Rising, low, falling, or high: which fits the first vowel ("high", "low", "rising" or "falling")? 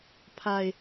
low